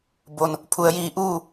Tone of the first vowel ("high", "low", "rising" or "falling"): low